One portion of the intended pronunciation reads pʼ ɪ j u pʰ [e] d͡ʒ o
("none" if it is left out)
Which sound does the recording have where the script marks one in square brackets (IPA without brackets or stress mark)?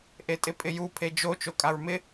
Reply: e